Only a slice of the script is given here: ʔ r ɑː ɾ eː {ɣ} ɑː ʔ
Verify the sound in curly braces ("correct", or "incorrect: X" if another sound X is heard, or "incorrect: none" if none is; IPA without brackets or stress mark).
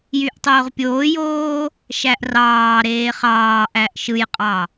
incorrect: χ